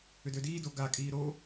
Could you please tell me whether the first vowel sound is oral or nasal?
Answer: oral